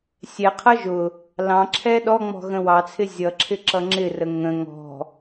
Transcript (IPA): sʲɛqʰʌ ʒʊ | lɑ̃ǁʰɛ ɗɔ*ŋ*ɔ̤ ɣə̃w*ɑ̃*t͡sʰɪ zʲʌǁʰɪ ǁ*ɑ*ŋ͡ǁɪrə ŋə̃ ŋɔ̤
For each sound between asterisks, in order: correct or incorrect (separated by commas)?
incorrect, incorrect, incorrect